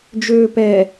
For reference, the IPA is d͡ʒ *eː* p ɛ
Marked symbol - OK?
no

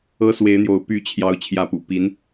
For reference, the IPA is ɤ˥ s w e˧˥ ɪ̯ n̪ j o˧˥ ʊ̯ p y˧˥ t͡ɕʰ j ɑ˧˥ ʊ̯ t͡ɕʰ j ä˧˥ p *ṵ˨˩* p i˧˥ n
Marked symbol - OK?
yes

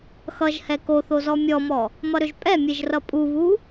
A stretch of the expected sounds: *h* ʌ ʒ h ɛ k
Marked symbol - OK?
no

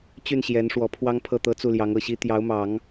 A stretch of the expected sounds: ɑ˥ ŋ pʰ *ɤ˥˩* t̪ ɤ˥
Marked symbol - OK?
yes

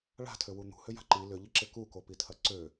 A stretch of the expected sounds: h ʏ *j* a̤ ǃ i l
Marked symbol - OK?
yes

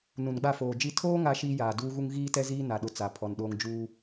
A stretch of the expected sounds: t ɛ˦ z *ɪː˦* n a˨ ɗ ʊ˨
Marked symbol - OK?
no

